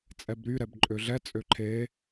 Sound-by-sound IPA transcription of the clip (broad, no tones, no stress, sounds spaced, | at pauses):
t͡sʼ ɛ b ɾ y ɾ ɛ b ǃʼ ø ɮ ɛ t͡sʼ ø ǃʰ e